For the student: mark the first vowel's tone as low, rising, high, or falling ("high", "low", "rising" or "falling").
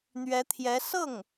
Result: rising